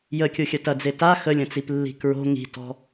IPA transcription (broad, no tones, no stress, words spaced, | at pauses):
jəkʲoxʲɐ tɐd͡ze ta xəlʲɐ̃t͡siplːi̤ kɹo̤ ŋi̤tɔ̤